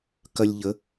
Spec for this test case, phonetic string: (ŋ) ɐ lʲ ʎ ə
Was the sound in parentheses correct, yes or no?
no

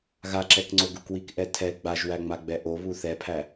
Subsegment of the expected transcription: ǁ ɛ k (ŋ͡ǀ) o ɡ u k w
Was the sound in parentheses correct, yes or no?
yes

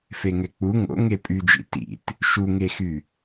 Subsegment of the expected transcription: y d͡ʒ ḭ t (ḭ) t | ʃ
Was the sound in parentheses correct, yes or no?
yes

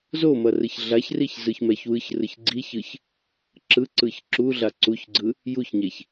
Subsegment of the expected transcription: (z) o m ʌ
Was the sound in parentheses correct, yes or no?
yes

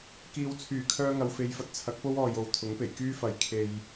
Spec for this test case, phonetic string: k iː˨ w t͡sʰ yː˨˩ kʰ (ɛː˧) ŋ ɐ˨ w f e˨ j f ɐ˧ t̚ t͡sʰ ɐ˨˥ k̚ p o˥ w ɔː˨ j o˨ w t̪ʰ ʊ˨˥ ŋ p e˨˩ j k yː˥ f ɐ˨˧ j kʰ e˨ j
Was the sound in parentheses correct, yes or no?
no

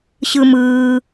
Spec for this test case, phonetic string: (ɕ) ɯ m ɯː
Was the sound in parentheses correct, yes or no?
yes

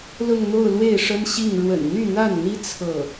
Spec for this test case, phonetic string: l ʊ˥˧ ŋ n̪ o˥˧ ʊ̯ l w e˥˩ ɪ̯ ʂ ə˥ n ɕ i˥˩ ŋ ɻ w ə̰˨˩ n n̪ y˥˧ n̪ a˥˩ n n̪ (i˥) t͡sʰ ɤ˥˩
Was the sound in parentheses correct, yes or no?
yes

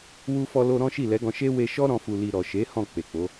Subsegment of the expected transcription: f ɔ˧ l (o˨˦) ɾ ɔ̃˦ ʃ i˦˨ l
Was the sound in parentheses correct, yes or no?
no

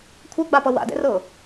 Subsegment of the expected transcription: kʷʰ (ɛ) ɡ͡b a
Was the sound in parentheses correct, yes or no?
yes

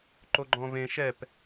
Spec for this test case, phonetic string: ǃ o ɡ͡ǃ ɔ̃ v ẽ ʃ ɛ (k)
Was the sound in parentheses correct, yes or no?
no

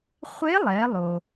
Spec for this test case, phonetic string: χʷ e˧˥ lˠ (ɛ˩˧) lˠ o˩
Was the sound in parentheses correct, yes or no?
yes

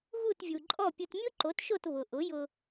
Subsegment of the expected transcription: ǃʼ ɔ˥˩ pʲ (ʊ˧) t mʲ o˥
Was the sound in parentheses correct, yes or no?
yes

